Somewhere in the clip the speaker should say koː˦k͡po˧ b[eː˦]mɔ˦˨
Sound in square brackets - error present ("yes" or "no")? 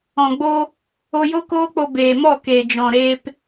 yes